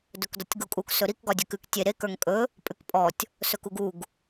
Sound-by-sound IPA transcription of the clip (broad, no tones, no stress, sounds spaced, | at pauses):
d ɵ k d ɒ tʲ ɡ u kʼ u k s ɵ ɾ i k ɡ ɒ dʲ ɵ k ʉ k tʲ e ɾ e k ə˞ ŋ kʼ ɵ | pʼ ʉ k pʼ ɔ tʲ | s ɵ k u ɡ u ɡ